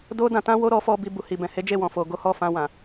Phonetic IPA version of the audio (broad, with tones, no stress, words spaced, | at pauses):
do˦dã˧tã˦wo˦ ɾɔ˦fɔ˦ bi˧ bu˨hi˨ bɛ̃˨he˨˦d͡ʒe˦˨ wɔ̃˨fo˨ɡo˨˦hɔ˦˨ fã˧wã˨